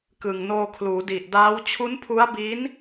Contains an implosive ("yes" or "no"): no